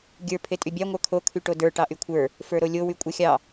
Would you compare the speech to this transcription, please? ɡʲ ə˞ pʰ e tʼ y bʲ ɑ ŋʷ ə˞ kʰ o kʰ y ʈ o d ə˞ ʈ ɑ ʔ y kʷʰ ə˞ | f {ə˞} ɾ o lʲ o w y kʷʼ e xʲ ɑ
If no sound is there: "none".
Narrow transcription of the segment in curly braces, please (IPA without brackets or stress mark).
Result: ə˞